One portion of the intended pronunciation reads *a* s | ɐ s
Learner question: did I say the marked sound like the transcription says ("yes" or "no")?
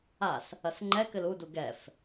yes